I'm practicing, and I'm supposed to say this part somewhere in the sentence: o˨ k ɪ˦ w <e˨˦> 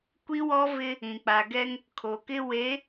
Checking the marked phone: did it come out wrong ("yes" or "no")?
no